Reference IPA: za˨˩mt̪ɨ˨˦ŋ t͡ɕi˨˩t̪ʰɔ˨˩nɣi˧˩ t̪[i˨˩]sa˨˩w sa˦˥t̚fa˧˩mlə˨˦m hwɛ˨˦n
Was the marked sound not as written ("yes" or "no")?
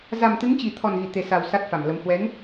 yes